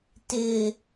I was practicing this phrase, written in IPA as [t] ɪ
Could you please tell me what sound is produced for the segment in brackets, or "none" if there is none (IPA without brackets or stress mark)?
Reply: t